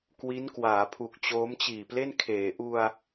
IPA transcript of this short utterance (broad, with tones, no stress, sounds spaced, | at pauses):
k w i˦˥ n k w aː˩˦ pʰ u˨˩ k̚ t͡ɕ oː˦˥ m t͡ɕ iː˨˩ p l e˥˩ n kʰ eː˩˦ ʔ u˧ a̯